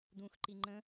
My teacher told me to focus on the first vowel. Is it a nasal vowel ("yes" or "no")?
yes